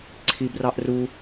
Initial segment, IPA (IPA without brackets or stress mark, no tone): ǀʰ